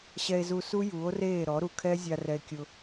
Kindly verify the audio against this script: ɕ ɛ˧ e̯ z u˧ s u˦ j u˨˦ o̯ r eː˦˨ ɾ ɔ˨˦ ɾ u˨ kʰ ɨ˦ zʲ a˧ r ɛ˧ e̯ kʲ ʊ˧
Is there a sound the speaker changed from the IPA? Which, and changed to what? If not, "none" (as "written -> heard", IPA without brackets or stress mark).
ɨ˦ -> ɛ˦